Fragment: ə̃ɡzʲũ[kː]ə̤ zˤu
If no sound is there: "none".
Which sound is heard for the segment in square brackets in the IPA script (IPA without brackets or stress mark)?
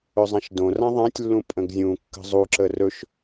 kː